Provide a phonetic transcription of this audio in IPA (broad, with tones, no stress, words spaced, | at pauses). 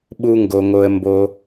ɓu˥ŋɡo˧ ŋo˧ə̯ mbo˧